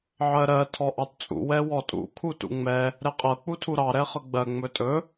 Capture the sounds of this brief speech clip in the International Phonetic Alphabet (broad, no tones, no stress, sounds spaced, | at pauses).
ʕ ɜ ɾ ɜ tʰ ɔ ʔ ɑ t t͡sʼ ṵ w ɛ w ɔ tʼ ṵ kʰ u t ṵ ŋ͡m ɛ | ɾ ɛ qʼ ɤ k͡p u tʰ u ɾ ɑ ɾ ɛ χ ɤ ɡ͡b ɜ ŋ͡m ɵ tʼ ɵ